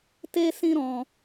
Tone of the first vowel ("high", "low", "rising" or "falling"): high